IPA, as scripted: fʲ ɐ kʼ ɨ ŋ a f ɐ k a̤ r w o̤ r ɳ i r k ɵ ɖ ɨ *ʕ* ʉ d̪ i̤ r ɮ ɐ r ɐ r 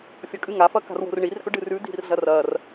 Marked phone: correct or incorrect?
incorrect